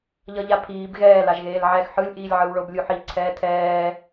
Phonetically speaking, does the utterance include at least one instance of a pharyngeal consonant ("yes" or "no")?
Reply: yes